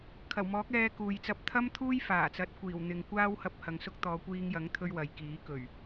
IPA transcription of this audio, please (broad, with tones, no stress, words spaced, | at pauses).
kʰɐ˨˩wmɔː˨˥k̚ ɛː˧kuː˨jt͡sɐ˧p̚ t̪ʰɐ˥mt̪ʰuː˥j faː˨˩t͡sɐ˨˥t̚kʷiː˨˩wn̪ɪ˨ŋ kʷaː˥whɐ˧p̚ hɐ˨ŋsʊ˥k̚ t̪ɔː˨˧kʷiː˧ŋjɐ˨˥ŋt̪ʰɵ˧ɥ wɐ˨jkiː˨˥ kɵ˨˩ɥ